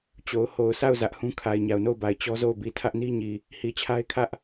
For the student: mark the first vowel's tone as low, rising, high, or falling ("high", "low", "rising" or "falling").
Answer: low